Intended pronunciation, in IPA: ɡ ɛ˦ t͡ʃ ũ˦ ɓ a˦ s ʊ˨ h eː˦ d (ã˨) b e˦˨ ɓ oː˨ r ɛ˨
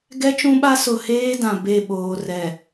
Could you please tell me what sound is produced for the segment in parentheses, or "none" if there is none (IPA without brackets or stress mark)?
ã˨